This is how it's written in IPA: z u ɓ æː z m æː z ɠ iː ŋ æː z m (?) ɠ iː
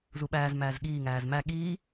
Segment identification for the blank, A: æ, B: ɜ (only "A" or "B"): A